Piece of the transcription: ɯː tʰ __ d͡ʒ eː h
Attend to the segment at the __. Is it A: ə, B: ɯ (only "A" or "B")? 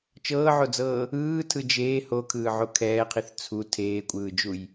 B